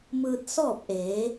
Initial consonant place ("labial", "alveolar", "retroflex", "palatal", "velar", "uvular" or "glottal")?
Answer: labial